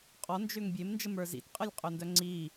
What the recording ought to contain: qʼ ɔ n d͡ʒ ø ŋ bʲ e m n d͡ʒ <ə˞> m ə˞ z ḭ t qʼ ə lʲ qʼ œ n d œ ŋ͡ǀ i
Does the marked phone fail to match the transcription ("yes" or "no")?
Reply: yes